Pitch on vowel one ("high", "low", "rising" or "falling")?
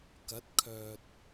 rising